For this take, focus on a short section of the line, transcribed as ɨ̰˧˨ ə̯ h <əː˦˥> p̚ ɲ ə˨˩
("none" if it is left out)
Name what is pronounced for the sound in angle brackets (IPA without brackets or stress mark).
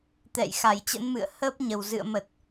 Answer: əː˦˥